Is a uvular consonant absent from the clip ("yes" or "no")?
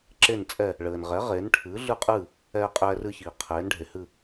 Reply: no